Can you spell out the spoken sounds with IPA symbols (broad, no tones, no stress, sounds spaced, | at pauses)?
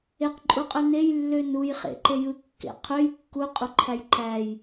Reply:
e q ǃʼ u qʼ ø n e j lː ø n u j χ ḛ ǃ e j ɯ kː ḛ qʰ ø j kː u qʼ u ǃʰ æ j ǃ æ j